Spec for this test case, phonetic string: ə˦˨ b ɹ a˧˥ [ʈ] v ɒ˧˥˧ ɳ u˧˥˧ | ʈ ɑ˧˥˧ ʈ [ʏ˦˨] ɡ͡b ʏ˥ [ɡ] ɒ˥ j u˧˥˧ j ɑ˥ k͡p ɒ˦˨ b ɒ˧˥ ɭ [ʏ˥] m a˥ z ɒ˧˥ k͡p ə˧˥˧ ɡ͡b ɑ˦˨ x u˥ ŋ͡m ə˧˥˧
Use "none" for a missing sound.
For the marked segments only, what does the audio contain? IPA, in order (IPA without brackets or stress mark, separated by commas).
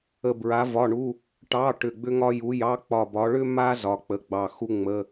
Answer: none, ʏ˦˨, ŋ, ʏ˥